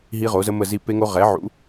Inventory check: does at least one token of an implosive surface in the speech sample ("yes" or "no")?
no